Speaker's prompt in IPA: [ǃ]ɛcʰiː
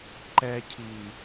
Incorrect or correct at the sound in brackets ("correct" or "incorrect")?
correct